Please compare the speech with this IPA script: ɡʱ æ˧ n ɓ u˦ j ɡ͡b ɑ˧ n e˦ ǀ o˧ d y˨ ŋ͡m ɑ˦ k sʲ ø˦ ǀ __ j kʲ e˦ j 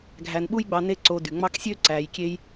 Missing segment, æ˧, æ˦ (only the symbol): æ˧